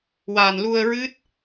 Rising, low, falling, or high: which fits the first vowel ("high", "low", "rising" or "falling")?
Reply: low